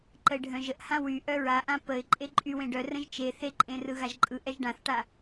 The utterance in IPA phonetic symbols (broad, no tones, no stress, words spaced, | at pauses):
ǃəɪ̯ɖʱœ̃ʒəʔhã wyʔœ ɹaʔã pəɪ̯ ǃʼeǃʼy wẽɖœ rə̃ʒt͡ʃe θeǃʼẽ rɯɣaʒǃʼɯ ʔɛʒɖãθʈa